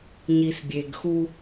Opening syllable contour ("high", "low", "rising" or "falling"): low